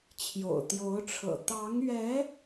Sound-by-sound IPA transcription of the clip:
t͡ɕʰjo̰˨˩ʊ̯t̪jo˧˥ʊ̯ʈ͡ʂʰɤ̰˨˩ t̪ɑ˧˥ŋɥɛ˧˥

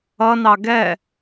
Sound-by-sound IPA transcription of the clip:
ʌnɑ ɡɛ

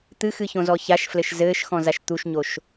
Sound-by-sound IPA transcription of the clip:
t̪ɨxɨçõzɔ çaʃflɘʃ zɘːʃxɔ̃zaʃ t̪uʃɲoʃ

